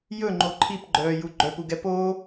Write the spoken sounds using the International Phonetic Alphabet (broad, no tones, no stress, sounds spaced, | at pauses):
j ɵ ŋ͡ǃ o ǃʰ i p ɡ͡ǃ œː j u ɡ͡ǃ œ p u ɡ ɛ p oː